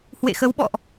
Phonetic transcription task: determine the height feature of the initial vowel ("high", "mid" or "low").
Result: mid